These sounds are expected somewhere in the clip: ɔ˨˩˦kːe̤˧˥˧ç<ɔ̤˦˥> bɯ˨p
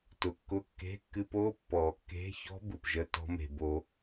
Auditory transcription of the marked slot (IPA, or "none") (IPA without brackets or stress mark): ɔ̤˦˥